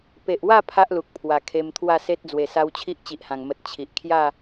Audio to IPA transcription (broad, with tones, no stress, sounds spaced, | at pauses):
p e˨ ʔ w a˥˧ pʰ a˦ ʔ l u˨ k̚ pʰ w a˨˩ kʰ e˧ m t̪ʰ w a˥˧ s e˦ t̚ d͡z w e˨˩ s a˧ w t͡ɕʰ i˦ ʔ t͡ɕ i˨ ʔ h ã˨˩ ŋ m ə˨ t̚ t͡ɕʰ i˨ ʔ kʰ j a˥˧